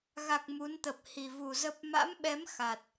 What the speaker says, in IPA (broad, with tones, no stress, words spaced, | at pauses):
ɣa˨˩k̚ mu˨˦nt̪ə˨˩p̚ hi˨˩ vu˨˩ zə˦˥p̚ ma̰˧˥mɓɛ˨˦m xa˨˩t̚